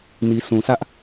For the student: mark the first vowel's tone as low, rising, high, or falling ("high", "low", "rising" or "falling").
low